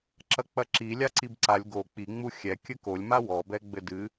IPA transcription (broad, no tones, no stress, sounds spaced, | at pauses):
ǁ ɐ k͡p ɐ ǁ i lʲ a ǀ i b ǀ a lʲ ɡ o k͡p i ŋ͡m u xʲ ɛ kʲ ɘ k o lʲ m a w ɔ b ɛ ɡ͡b ɘ d ɨ